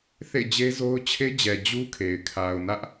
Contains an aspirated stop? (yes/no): yes